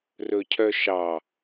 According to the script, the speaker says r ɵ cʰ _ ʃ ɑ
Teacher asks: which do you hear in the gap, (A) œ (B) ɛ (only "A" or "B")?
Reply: A